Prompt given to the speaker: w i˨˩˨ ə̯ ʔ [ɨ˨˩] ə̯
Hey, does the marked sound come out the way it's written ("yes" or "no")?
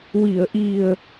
no